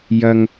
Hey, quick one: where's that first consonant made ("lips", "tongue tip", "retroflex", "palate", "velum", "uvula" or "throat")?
palate